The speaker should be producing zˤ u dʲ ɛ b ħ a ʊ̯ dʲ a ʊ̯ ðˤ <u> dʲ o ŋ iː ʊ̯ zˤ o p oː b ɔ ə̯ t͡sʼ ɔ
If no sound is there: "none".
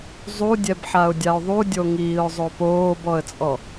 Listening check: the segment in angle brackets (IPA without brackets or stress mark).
u